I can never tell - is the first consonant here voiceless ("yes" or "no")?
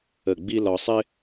no